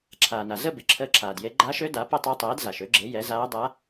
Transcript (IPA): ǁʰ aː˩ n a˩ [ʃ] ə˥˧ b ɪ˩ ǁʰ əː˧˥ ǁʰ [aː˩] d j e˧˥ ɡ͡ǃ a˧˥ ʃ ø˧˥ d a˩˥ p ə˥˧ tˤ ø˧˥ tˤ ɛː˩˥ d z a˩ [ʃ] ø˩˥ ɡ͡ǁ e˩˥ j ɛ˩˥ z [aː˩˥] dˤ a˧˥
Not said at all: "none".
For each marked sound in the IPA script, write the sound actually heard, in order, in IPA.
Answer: z, aː˩, ʃ, aː˧˥

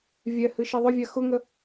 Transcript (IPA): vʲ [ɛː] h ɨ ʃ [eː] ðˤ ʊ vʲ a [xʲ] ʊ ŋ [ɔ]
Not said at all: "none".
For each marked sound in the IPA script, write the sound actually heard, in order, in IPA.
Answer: ɛ, e, x, ə

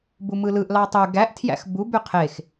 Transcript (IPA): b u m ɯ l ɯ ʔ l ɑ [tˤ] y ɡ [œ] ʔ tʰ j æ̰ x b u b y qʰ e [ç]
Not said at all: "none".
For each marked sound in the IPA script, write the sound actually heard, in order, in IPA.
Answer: tˤ, æ, x

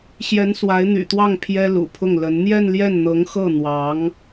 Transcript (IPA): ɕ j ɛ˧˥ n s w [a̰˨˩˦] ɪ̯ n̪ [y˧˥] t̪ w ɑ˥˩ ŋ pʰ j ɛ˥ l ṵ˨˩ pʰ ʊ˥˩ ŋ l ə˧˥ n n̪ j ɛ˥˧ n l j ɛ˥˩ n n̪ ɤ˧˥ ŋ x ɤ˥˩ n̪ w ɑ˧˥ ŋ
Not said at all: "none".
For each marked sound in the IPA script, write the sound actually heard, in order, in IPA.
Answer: a˧˥, y̰˨˩

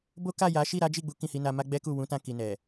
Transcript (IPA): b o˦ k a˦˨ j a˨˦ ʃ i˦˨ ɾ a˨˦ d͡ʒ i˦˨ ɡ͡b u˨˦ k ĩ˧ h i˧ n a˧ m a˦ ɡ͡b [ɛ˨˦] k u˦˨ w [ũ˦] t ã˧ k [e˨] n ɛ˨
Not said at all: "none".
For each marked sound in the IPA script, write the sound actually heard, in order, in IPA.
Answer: ɛ˦, ũ˨˦, i˨

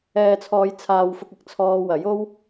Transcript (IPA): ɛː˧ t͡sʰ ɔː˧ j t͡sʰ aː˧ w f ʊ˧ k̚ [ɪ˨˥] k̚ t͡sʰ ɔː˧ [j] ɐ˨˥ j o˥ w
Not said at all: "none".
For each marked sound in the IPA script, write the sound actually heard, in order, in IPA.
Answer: ɪ˨˥, w

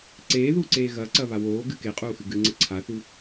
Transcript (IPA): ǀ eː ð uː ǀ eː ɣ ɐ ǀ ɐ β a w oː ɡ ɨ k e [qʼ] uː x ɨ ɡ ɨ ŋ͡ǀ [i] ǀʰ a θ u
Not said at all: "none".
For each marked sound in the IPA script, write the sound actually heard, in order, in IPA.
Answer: qʼ, ɨ

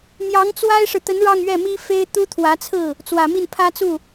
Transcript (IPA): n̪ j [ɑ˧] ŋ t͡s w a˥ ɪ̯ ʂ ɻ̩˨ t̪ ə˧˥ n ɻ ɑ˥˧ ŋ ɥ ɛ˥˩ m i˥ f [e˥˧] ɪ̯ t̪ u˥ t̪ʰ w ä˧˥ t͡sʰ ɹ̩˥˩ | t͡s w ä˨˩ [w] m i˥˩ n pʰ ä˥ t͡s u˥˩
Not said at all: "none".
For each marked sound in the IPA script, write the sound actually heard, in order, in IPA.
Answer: ɑ˧˥, e˥, none

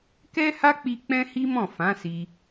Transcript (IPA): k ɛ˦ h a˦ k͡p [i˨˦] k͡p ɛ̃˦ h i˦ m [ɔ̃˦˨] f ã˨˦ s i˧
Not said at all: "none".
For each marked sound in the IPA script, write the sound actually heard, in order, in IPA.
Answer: i˧, ɔ̃˦˨

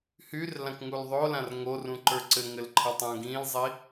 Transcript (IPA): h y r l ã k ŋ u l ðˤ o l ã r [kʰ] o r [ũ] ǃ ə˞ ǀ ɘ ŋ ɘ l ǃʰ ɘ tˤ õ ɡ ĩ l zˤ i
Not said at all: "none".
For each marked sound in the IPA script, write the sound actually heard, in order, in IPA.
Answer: ŋ, ũ

